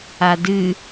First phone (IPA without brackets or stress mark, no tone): a